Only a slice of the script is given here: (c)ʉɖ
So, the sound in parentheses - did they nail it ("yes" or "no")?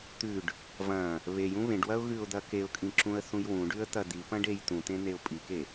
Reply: no